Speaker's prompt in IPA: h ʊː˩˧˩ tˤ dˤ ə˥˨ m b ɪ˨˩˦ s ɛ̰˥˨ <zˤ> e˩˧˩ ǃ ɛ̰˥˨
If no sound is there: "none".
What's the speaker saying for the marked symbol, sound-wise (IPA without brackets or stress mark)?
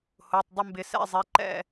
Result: zˤ